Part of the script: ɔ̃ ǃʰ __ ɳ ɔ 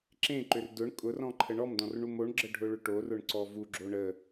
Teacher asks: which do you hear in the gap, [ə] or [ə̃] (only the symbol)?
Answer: ə